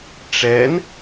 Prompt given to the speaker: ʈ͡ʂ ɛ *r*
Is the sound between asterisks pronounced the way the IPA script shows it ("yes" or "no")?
no